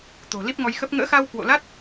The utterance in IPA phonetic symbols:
t̪o̤˨˩li˦˥p̚ŋɔ˧jxə˦˥p̚ ŋə̰ː˧˥xa˧w kwo̰˧˨la˦˥t̚

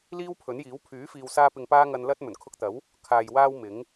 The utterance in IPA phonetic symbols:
liː˥wpʰɵ˨˥njiː˨˥w pʰyː˨˥ fiː˨wsaː˧pɪ˨ŋ paː˥ŋɐ˧n lɐ˥t̚ mɵ˨˩nkʰʊ˧k̚t̪ɐ˨˥w | kʰaː˨jwaː˧w mɪ˨˥ŋ

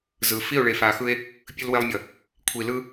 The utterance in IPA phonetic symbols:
zɯ˨ fi˦˨o̯ɭe˨ fa˨xɯ˦e̯ | pʲɯ˦lwe˦lˠmʲʌ˨ | kʷʰi˨lɯ˦

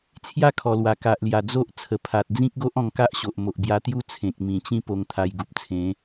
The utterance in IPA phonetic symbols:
t͡sʰja˥˧kʰɔ˨˩lwa˨˩ ka˨ʔlja˨˩ d͡zo˦ʔ t͡sʰə˨˩pʰa˨t̚ d͡zĩ˦k̚ɡo˦ʔ ɔ̃˧ŋka˦ʔɕo˨ʔ mo˨ʔbja˧t̪ju˦ t͡sʰẽ˨k̚mĩ˨˩t͡ɕĩ˥˧ po˧ŋt̪ʰa˧jɡu˨p̚t͡sʰẽ˨˦

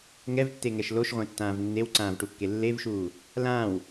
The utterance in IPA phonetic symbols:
ŋɛvtːeŋɛʃ loʃʁʷɛ̃tːãːv nːewǀãːvʈukːe lːevʃuː | lãːw

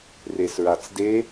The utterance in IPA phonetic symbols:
resɹat͡sde

